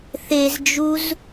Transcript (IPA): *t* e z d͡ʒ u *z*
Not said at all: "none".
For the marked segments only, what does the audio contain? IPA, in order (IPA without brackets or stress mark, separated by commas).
θ, z